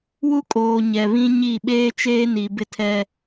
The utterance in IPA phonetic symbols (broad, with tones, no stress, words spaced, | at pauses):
wu˦kʼoː˨ ɲɛ˨βĩ˦ɲi˦˨ ɓeː˦t͡ʃeː˦ni˨ bɪ˦tʰɛ˦